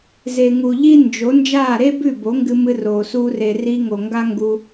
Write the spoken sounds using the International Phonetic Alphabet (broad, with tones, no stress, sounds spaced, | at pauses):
z e˨ ŋ u˨ ʎ i˦ n d͡ʒ o˨˦ n d͡ʒ aː˦˨ ɾ e˦ b ʉ˦˨ b o˨˦ ŋ ɡ ɨ˧ m ɨ˧ r oː˨ s uː˧ r e˨ r i˧ ŋ o˨ ŋ ɡ a˦ ŋ ɡ u˧